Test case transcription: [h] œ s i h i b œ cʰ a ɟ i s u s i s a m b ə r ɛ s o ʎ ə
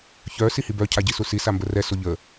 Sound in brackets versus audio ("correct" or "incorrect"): incorrect